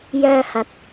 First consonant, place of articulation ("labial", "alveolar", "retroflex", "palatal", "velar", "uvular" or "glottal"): palatal